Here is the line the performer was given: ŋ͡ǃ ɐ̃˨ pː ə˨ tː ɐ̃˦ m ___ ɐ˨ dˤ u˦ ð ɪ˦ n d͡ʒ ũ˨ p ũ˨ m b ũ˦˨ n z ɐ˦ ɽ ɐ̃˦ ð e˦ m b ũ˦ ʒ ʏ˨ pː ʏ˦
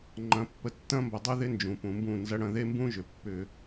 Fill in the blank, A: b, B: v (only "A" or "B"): A